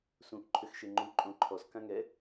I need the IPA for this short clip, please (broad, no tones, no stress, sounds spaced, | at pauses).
s ũ ʔ ǃʰ ʏ x ʃ e ŋ͡ǃ u ǃʼ õ ǃʰ ɔ s k ã ŋ ɛ